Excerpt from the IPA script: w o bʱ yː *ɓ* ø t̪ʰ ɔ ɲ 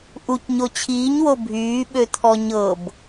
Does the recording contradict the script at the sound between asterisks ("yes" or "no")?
no